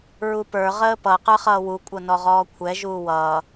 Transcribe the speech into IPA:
ɹupə˞ ʁəːpʌ qə˞χʌːwu kʷʼʌnɔʁɔːkʷʰɛ ʒuːwʌː

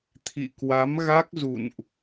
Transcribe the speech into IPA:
t̪ʰḭ˧˨kwa˨˦mɣa˦˥k̚ zṵ˧˨nʔ

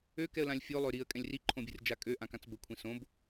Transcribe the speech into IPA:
økɛə̯lãlʲ fʲolˠø ɾiə̯kʼɛ̃lʲ riǃʰõbʲɨrd͡ʒa kʼøʔãkãt͡s bəkʷʰĩ sõb

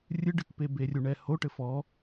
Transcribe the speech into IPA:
rʲɨɖɨkpebe rʲuɳɛhoʈɘ fɔ

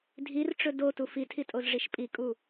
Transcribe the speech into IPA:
dʱirʈ͡ʂɵ dotu fitʰitʼozʐiʃ pʼikʼu

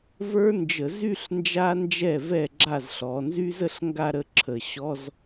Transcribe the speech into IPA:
və˞˦˥nd͡ʒə˧˩˧zy˥˧ɬ nd͡ʒa˦˥nd͡ʒɛ˥˩vɛ˥˩ ɡ͡ǁa˥˩z ɬɔ˩˧nzy˦˥z ə˥˧ɬŋɡa˥˧ɾə˥˧ ǁʰə˧˩˧ ɕɔ˧˥˧z

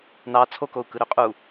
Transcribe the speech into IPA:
nɑ t͡sʰokou̯ kɯɾøqʼu

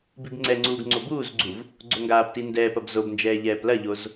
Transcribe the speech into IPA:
bibŋ͡ǀɛŋ͡ǀuːɡ ŋ͡ǀobuːzɡ͡ǀuv | ɡ͡ǀoŋɡaːpti ndɛːpɐb zobnd͡ʒɛː ʎɛːplɐʎoz

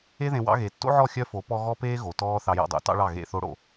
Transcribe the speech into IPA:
e˦ðẽ˧ wɑ̰˦ ɣe˨tːo̰˦ʕɔ˦˨ xʲœ˦fo˨˦ pɔ˦ ɣɔ˦peː˦ ɣo˨tɔː˦ θɑ˧jɔ̰˧dˤo̰˨ tɑ̰˦ɭɑ˦˨ ɣḛ˦˨θo˦ɽo̰˨

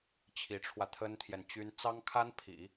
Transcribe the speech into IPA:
t͡ɕʰi˧˥ʈ͡ʂʰwä˧ t̪ʰə˥nt̪ʰjɛ˨nt͡ɕy˥n t͡sɑ˥ŋkʰa˥n pʰḭ˨˩˦

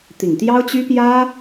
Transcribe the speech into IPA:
t̪i˨˩ŋt̪jɑ˥ʊ̯t͡ɕy˥ pjä˥

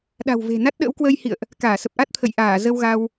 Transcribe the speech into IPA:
ɗa̤˨˩wve̤˨˩ na˦˥t̚ɗə̰ː˧˥w kwəː˧jhḭ˧˨ə̯ʔ | kaː˧˩sə˨˩p̚ʔa˦˥t̚ t̪ʰə̰˧˨jʔaː˧˩ zə˧wɣa˧w

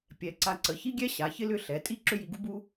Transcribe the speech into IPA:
pʲɛ˩˧ ǀa˧˩ǀə˩˧çi˥ɡʲɛ˥ ɕa˩˧çɪ˥lʏ˥˧ ɬɛ˩˧ tʼi˥˧ ǁʏ˥ji˧ɡu˥bu˥

